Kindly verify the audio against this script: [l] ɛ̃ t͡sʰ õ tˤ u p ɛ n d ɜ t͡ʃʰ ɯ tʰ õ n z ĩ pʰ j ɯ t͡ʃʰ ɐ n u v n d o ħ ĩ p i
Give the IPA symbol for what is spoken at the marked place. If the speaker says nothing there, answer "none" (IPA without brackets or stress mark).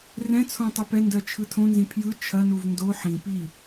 r